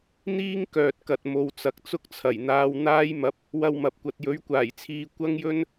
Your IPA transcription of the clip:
n̪ iː˥ ŋ k œː˨ t̚ k ɐ˨ t̚ m o˧ w t͡s ɐ˨ k̚ t͡s ʊ˥ k̚ t͡sʰ ɐ˨˩ j n̪ aː˧ w n̪ aː˧ j m ɐ˨˥ p̚ | w ɐ˧ w m ɐ˨ p̚ kʷ ɐ˨ t̚ j ɵ˨˥ ɥ kʷ aː˨˩ j t͡sʰ iː˨˧ kʷ ɐ˥ ŋ j ɵ˥ n

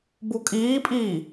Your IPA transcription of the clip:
b u kʼ iː pʼ iː

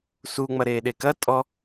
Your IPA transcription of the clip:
s u ŋ͡m ɐ ɾ eː ɗ e k ɐ tʼ ɔ

